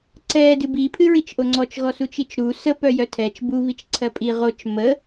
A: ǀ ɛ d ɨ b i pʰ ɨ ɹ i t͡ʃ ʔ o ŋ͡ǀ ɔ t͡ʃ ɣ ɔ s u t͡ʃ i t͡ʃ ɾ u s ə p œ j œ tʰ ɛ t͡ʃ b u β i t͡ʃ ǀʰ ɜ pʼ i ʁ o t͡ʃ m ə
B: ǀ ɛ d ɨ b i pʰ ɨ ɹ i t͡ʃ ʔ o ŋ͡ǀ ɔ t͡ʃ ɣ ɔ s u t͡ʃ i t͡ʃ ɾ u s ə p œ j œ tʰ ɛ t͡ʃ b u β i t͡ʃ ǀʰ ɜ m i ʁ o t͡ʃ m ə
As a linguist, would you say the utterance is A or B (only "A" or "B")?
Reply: A